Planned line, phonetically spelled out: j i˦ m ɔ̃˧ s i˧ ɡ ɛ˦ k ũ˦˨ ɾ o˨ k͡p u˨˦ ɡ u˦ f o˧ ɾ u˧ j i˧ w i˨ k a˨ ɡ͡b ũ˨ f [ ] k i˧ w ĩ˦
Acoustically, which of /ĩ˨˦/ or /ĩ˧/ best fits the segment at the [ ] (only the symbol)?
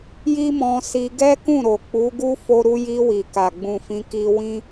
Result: ĩ˨˦